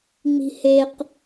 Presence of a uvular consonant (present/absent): present